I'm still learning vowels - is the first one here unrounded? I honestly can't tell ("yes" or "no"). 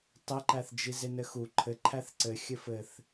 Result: yes